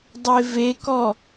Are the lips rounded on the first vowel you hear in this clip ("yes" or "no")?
no